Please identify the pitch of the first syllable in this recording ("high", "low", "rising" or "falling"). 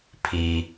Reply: low